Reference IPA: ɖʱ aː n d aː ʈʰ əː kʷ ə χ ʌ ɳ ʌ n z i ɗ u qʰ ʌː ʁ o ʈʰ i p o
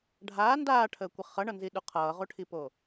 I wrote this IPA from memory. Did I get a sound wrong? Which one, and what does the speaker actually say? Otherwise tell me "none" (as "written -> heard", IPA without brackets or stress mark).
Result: none